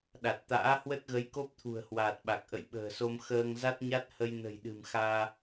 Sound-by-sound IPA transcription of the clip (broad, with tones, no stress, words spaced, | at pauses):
ɗa˨˩t̚t̪a̰ː˧˥ hwə˦˥t̚ɣə˨˦jko˦˥p̚ t̪ʰṳ˨˩ə̯hwaː˨˩t̚ɓa˨˩k̚ ʔə̰˧˨jɓə̤ː˨˩so˧m xəː˧ŋza˦˥t̚ɲa˦˥t̚ hə˧jnə̤˨˩jɗɨ̤˨˩mxaː˧